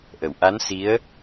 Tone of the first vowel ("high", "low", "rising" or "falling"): low